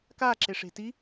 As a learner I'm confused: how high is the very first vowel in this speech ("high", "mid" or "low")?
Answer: low